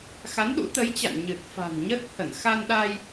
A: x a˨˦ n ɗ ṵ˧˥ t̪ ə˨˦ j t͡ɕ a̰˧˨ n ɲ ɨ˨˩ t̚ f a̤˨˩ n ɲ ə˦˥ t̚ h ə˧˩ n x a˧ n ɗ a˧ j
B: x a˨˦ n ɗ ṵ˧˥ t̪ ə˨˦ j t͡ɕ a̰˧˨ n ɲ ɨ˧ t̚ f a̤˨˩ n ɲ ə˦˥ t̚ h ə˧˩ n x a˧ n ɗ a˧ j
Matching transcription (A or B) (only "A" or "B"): A